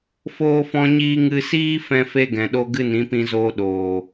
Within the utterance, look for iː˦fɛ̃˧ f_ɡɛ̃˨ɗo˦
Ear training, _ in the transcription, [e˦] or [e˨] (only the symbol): e˦